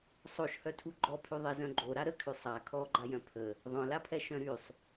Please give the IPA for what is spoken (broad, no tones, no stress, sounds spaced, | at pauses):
sˤ o ʃ h œ tʰ u ɡ͡ǃ ɔ pʰ y ðˤ e z œ̃ ɡ͡ǃ o ɾ a ɾ ə kʰ y sˤ a kʰ ɔ ɡ͡ǃ a j œ̃ pʰ ə | ðˤ œ̃ l a pʰ ɛ ʃ œ̃ ɾ y sˤ